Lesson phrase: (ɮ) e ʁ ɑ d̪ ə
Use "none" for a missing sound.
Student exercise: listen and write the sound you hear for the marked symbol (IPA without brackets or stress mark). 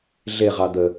ɮ